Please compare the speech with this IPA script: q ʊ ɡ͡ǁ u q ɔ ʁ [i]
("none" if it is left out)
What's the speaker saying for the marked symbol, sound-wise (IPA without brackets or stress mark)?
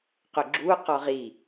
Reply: i